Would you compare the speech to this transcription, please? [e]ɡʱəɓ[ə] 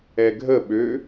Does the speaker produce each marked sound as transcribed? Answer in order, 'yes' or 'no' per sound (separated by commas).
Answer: no, no